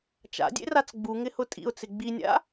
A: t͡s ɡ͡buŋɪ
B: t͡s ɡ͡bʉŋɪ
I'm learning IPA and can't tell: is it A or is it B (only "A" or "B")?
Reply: A